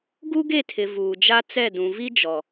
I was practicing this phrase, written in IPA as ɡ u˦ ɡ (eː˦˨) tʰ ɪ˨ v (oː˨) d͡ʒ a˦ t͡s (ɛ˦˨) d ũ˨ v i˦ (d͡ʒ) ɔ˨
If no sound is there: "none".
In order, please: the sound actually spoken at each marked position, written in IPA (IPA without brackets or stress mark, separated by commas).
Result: e˦˨, uː˨, ɛ˦˨, d͡ʒ